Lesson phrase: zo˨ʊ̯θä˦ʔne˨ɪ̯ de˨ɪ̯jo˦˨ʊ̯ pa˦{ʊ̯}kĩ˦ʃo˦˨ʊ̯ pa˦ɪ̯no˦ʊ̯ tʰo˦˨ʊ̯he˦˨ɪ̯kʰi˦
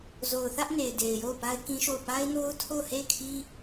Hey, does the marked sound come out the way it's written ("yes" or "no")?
no